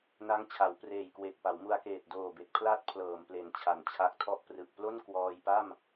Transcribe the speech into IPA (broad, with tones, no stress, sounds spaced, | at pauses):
n a˦˥ ŋ t͡ɕʰ a˩˦ w p r eː˨˩ j k w e˨˩ k̚ p a˩˦ w m u˧ a̯ k eː˨˩ t̚ d oː˨˩ b e˨˩ k̚ pʰ l a˦˥ t̚ pʰ l ɤː˨˩ m p l e˨˩ n t͡ɕʰ a˩˦ n t͡ɕʰ a˦˥ k̚ tʰ ɔ˥˩ ʔ p r ɯ˨˩ k̚ p l o˥˩ n k w ɔː˧ j p a˥˩ m